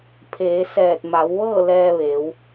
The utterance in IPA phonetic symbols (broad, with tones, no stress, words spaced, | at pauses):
pʰeː˩˧sɛː˧˩t̚ ma˩˧wʋɤː˥˨ lɛː˧ʋeː˩˧w